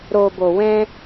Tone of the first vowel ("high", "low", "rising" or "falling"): low